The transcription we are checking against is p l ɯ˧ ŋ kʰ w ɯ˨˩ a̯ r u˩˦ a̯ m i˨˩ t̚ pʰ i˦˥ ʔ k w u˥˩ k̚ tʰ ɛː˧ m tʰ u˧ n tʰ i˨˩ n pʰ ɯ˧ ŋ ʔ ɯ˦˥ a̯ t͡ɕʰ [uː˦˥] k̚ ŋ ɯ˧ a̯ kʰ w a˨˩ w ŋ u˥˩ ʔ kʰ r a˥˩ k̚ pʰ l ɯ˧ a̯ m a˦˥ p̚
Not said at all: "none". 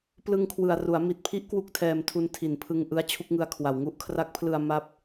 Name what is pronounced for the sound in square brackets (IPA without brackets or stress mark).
u˦˥